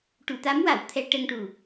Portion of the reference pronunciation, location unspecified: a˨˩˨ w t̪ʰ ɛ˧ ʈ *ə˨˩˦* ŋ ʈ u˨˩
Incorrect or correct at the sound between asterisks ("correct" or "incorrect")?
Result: incorrect